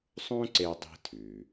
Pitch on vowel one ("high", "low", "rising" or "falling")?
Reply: high